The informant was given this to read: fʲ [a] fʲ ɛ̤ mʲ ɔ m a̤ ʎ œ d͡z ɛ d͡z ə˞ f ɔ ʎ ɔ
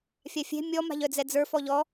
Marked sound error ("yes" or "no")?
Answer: no